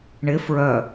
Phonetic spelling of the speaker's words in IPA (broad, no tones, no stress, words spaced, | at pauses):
ɳɪ fɹœ